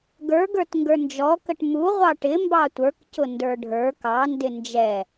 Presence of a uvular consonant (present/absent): present